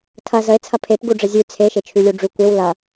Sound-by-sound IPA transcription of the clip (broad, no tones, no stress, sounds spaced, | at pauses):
tʰ ɐ z ə e̯ t͡sʰ ɐ pʰ e p ɡ u ɖ͡ʐ ə zʲ ʉ t͡sʰ e ʃ e t͡ʃʰ ʉ lʲ u ɖ͡ʐ ʉ kʷ e w l ɐ